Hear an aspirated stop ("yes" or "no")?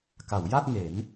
no